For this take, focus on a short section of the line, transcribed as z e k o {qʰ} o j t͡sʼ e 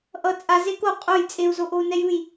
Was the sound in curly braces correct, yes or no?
no